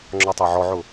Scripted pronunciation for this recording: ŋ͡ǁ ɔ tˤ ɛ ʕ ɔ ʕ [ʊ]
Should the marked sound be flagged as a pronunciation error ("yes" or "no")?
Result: no